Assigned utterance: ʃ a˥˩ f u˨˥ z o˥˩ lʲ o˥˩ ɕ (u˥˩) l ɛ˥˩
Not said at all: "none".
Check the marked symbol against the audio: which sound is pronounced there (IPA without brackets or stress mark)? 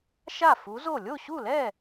u˥˩